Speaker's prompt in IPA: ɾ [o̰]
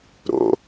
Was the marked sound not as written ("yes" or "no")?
no